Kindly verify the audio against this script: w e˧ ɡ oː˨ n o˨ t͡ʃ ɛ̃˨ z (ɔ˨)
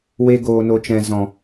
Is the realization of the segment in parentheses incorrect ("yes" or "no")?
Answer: yes